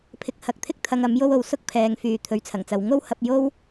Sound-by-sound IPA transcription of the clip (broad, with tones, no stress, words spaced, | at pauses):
pʰɪ˧k̚hɐ˨˥k̚ t̪ʰɪ˥k̚t̪ʰɐ˨ŋ ɐ˨˥mjo˥wo˧w sʊ˥k̚pʰɛː˨ŋfyː˨ t̪ʰɵ˨˧ɥt͡sʰɐ˨˩ŋt͡sɐ˨˧w ŋo˥whɐ˧p̚jo˥w